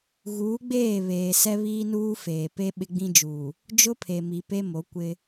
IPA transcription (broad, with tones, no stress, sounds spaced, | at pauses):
ɣ uː˨˦ ɡ͡b eː˦˨ β eː˨ s ɛ˦ β iː˦ n uː˦ f eː˨ p e˦ ɓ ɪ˦ ɡ͡b ĩ˦ d͡ʒ uː˨ | d͡ʒ ʊ˦ pʰ e˨ m i˨ p e˦ m o˨˦ kʷ ɪ˦